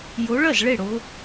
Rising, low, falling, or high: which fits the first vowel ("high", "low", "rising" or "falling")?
rising